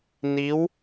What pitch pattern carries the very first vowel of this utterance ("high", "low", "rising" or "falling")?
rising